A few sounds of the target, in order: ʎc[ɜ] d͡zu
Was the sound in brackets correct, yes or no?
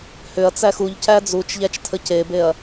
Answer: no